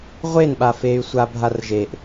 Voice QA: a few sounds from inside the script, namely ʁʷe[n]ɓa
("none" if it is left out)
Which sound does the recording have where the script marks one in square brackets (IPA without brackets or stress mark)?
n